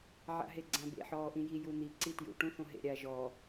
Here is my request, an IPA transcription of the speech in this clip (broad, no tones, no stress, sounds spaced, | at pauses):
ʕ a̰ ɦ e ɡ͡ǀ ã b ḛ ħ ɔː ʔ ĩ j i j u n̪ i ǀ i t j ṵ ʈ ũ θ õ ɦ ḛ ɾʲ a ʒ ɔ